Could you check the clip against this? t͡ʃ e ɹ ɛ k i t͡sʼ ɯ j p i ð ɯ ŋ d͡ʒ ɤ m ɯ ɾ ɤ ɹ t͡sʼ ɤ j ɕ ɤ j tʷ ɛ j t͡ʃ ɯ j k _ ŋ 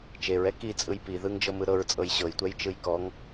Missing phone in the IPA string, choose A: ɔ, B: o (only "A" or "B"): A